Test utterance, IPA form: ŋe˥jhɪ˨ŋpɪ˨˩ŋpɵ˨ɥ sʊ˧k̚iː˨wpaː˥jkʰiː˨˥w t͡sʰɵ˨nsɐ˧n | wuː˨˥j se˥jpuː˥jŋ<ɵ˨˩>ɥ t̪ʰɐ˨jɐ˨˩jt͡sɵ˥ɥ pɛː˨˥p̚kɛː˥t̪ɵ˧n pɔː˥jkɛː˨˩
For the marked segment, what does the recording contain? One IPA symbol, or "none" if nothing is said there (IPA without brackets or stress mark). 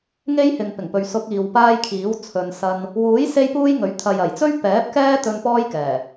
ɵ˨˥